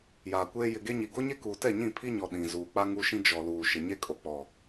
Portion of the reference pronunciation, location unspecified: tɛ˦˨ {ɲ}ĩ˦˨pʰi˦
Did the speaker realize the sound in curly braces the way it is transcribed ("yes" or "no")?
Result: yes